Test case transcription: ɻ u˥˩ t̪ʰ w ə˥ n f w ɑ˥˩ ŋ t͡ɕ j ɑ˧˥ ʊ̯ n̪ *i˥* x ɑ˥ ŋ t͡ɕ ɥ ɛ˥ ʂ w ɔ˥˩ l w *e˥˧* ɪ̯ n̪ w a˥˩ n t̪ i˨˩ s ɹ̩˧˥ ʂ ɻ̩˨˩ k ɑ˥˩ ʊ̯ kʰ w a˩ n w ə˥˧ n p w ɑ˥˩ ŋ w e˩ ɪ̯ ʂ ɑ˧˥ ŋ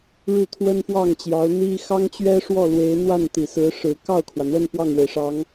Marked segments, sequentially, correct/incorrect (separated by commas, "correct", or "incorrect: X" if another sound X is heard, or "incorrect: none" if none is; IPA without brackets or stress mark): correct, incorrect: e˧˥